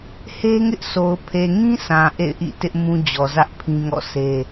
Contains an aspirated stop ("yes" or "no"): yes